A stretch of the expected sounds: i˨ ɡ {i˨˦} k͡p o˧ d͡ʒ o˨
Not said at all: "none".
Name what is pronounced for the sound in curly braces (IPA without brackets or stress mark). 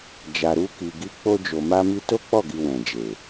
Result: i˨˦